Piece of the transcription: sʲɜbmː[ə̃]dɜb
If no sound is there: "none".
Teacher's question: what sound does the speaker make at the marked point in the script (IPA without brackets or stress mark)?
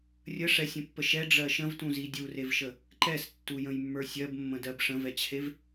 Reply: ə̃